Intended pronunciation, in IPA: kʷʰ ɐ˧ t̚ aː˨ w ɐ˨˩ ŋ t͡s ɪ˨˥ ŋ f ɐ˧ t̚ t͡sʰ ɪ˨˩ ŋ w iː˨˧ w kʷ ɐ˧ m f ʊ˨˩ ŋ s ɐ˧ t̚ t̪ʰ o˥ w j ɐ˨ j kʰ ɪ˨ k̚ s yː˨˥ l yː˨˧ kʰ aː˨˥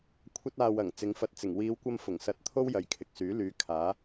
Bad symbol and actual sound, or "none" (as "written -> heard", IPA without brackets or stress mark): t͡sʰ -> t͡s